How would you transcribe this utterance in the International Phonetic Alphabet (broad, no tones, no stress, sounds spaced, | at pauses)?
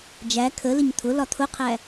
d͡ʒ æ kʰ ə l ɪ ɲ t̪ʰ ʊ l ɒ t̪ʰ ʊ qʰ æ